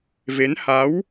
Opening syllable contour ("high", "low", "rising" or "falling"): rising